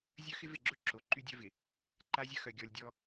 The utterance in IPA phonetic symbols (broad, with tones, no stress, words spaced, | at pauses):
zʲœ˦xɪ˦vɪ˦˨ɡ͡ǁʊ˦ ǁo˨ǃy˦dʲœ˦vɪ˨ | ǃa˦zʲɐ˦xœ˨ ɡʲɔ˨lʲdʲɔ˦